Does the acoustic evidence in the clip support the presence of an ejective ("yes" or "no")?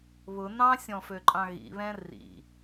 yes